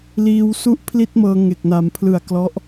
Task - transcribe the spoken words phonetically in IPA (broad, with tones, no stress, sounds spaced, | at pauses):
l iː˧ w s u˥˩ ʔ pʰ l i˥˩ t̚ m ɤː˧ ŋ e˨˩ k̚ n a˩˦ m pʰ l ɯ˨˩ a̯ k l ɔ˦˥ ʔ